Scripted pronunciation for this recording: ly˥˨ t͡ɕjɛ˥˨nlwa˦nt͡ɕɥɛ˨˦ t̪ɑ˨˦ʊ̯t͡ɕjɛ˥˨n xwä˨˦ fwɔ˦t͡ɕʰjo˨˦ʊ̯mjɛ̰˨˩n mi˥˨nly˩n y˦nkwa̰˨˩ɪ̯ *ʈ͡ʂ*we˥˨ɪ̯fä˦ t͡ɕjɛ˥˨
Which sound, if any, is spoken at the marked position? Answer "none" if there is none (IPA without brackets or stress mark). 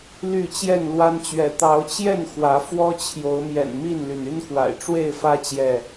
ʈ͡ʂ